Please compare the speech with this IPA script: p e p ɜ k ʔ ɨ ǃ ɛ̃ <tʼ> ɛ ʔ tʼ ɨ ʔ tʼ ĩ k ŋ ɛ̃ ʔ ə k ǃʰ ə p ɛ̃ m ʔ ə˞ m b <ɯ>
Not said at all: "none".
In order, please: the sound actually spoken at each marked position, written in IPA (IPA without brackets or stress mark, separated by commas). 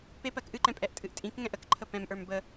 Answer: pʼ, ə